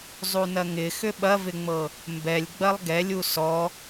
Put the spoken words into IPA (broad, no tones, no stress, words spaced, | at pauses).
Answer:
zˤunɐŋɪxʏ ɓɐvɪŋ͡mɤ | mbɛlʲɡ͡bɐlˠ ɡɛlʲu sɔ